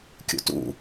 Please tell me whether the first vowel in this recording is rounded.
yes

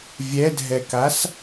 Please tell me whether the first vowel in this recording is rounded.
no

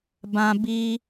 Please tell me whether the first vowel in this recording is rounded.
no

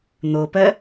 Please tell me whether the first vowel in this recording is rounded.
yes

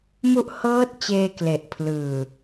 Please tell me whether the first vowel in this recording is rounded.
yes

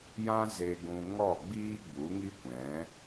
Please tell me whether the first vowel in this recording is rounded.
no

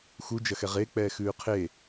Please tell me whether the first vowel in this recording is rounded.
yes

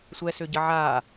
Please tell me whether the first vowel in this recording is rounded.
no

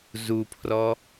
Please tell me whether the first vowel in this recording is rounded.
yes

